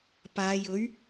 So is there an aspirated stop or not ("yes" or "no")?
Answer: no